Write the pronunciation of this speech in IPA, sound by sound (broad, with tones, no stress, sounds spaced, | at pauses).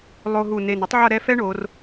lˠ o˧ ɦ u˧˩ n e˧˩ n u˥ tˤ ʕ ʌ˥˧ ɾ ɛ˥ f ɛ˥ ɳ o˩˧ r